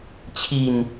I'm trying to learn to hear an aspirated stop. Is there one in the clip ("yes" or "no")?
yes